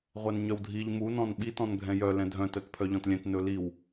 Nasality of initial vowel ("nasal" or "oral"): oral